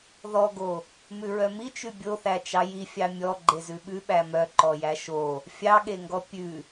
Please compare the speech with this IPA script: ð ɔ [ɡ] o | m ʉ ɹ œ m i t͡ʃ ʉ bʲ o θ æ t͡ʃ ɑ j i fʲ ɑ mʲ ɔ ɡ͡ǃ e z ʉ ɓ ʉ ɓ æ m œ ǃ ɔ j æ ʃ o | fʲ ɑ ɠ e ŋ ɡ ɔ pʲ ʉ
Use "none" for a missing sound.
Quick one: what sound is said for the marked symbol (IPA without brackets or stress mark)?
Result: ɡ